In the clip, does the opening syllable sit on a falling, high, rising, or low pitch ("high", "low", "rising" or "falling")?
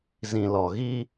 low